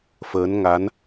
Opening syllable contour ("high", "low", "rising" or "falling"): rising